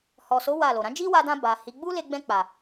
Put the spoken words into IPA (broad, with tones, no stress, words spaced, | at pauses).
hɔ˨so˨˦ wa˦˨lo˨ ɾã˨˦d͡ʒi˦wa˧dã˧ ba˨hi˨˦ ɡ͡bu˦le˧ɡ͡bɛ̃˧ k͡pa˨